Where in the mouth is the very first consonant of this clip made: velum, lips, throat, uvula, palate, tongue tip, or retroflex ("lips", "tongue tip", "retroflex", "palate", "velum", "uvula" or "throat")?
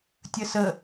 tongue tip